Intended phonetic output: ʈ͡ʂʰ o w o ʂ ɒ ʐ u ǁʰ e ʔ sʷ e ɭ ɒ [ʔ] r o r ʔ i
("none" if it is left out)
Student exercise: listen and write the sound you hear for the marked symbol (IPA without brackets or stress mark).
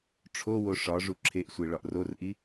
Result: ʔ